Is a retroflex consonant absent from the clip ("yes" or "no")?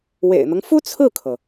yes